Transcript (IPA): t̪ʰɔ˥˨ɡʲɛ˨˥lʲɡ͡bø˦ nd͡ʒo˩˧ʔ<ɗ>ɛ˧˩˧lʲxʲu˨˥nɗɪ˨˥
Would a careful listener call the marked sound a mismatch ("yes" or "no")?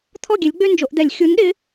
yes